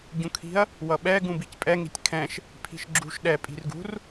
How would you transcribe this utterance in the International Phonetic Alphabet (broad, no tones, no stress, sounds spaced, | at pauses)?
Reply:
ɟ ũ kʰ i̤ ɐ̯ | w ʌ ɓ ɛ ɡ ũ b i c pʼ ɛ ŋ i̤ tʲ kʰ ɛ̃ ʃ | pʰ i̤ ʃ ɡ͡ǁ ṳ ʃ ɗ ɛ pʼ i̤ r ɡ ṳ r